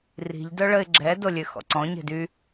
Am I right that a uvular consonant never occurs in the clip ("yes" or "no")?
yes